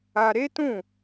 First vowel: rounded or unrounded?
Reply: unrounded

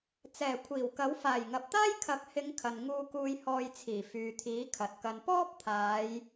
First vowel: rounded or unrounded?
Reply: unrounded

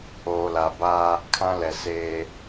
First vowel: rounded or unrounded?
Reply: rounded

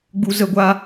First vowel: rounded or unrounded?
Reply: rounded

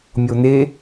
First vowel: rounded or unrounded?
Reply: rounded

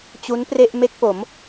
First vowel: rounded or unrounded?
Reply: rounded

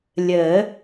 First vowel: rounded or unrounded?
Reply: unrounded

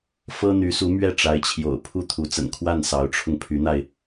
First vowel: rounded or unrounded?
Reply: unrounded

